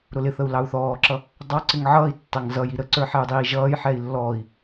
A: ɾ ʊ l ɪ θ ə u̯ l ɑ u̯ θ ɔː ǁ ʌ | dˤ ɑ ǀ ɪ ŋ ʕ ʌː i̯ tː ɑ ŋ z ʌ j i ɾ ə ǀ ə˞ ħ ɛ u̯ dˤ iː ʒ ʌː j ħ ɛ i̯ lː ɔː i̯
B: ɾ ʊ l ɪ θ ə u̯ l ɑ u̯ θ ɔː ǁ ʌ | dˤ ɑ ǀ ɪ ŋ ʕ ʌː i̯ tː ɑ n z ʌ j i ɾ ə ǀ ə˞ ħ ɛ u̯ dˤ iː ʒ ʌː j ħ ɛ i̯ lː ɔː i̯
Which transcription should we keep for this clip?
A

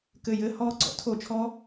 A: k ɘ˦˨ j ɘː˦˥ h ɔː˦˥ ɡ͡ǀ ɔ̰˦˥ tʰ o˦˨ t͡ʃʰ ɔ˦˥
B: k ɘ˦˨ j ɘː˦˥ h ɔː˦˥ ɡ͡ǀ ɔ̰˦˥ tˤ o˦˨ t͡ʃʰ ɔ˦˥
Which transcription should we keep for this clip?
A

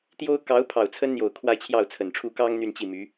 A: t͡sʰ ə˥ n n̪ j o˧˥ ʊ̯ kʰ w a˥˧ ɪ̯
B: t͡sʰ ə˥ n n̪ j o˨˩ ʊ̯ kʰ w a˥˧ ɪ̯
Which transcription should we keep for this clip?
B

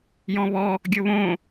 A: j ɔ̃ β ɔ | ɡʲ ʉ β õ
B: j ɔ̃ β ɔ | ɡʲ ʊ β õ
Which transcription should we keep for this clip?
B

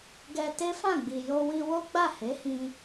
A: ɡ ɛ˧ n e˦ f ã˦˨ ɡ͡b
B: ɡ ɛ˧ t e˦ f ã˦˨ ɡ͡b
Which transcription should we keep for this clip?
B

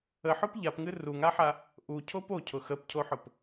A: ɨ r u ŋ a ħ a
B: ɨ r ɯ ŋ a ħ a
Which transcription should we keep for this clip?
A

